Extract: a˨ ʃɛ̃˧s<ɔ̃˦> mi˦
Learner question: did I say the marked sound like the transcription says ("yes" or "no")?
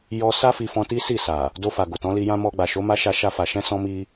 no